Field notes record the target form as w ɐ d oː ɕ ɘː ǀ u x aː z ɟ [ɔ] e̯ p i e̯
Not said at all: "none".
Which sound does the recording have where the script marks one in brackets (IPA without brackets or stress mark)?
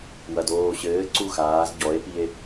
ɔ